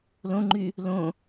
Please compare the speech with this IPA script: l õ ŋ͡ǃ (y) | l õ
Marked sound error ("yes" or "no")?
no